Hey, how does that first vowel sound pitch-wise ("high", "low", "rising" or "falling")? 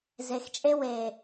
low